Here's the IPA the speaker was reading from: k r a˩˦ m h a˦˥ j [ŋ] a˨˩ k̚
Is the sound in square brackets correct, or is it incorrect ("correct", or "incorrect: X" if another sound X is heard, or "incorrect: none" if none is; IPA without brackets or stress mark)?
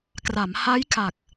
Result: incorrect: kʰ